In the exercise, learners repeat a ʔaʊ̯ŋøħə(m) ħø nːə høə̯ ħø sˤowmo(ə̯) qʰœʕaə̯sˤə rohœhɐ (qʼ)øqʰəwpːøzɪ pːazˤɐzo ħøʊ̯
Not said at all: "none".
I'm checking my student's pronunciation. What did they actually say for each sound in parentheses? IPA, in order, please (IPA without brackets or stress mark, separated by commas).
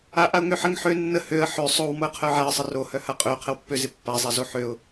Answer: ŋ, ə̯, qʼ